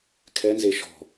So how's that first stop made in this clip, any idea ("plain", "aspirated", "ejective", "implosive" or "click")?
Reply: aspirated